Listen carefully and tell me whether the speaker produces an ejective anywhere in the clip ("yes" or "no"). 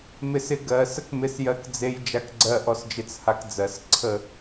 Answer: no